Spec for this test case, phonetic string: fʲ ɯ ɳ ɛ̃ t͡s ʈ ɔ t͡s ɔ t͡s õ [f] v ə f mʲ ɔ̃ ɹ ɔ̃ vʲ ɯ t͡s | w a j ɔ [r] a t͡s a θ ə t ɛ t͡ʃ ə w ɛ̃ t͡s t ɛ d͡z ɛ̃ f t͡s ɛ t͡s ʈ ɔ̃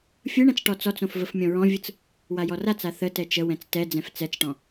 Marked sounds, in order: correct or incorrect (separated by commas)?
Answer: correct, correct